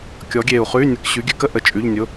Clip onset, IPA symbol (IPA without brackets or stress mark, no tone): kʲ